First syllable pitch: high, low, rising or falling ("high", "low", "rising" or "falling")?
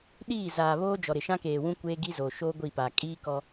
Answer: falling